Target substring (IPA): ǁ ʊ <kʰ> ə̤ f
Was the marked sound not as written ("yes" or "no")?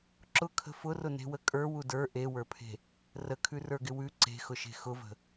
no